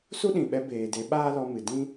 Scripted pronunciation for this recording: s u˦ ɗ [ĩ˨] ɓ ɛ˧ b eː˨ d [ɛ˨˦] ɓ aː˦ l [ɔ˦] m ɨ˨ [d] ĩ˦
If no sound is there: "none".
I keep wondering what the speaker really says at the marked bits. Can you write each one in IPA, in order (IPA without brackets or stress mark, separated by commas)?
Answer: ĩ˨, e˨˦, ɔ˧, d